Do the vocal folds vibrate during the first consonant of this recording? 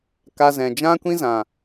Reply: no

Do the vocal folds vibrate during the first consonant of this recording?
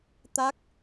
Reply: no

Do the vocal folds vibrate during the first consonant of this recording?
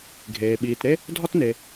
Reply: yes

